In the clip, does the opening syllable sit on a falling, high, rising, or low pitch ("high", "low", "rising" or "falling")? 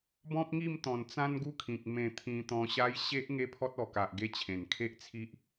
high